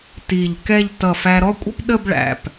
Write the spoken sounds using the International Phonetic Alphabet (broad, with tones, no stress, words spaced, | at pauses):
ti˧˩ʎkɛ˥˧ʎ tʌ˧˩fæ˧ ɾɔ˥˧kʷʼə̰˥pɗə˥˧b ɭæ̰˩˧p